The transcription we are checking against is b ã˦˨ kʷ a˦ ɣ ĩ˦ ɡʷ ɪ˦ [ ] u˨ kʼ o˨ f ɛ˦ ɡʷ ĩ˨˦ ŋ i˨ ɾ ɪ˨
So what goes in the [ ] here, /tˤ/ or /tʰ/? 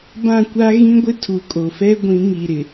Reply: tʰ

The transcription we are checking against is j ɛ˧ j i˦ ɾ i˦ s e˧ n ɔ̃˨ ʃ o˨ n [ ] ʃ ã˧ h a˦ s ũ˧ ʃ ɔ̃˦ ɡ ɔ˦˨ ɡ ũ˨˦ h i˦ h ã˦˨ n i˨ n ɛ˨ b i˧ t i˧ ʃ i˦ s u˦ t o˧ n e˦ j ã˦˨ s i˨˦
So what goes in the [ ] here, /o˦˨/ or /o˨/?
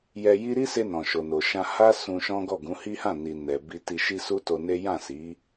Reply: o˨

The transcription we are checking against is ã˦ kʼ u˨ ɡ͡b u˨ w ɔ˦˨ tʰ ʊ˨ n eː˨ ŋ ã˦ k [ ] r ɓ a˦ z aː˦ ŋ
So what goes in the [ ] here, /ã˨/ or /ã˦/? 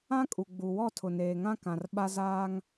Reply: ã˨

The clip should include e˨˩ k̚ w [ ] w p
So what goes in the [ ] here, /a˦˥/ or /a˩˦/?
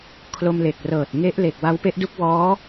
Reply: a˦˥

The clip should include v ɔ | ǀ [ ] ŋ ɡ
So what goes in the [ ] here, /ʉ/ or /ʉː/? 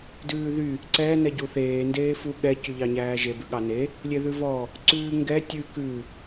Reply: ʉː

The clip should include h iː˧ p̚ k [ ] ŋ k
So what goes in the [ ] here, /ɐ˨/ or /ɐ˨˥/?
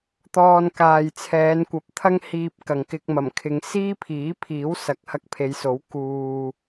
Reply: ɐ˨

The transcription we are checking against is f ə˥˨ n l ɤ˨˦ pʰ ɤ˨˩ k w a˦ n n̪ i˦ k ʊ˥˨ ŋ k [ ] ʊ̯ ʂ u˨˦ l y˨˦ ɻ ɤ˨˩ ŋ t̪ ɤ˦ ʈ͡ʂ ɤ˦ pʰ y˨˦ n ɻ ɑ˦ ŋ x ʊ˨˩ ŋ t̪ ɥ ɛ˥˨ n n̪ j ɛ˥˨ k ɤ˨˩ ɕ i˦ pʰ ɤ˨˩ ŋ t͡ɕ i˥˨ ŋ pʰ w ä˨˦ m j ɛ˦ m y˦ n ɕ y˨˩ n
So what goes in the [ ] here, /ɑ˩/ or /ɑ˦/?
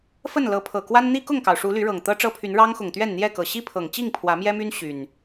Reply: ɑ˩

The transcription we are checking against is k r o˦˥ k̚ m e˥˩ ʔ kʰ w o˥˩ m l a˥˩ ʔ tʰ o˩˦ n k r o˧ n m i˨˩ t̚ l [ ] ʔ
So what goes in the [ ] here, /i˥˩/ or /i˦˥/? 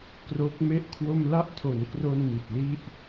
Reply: i˥˩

